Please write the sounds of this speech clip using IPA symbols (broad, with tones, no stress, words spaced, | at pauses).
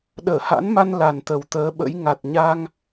ɗəː˧˩ha̰˧˥nma˧n la˨˩nt̪ə˨˩wt̪əː˨˦ɓə̰˧˥j ŋa˨˩t̚ɲa˧ŋ